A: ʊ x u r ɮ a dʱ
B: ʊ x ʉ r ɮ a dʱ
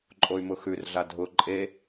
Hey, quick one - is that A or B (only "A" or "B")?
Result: B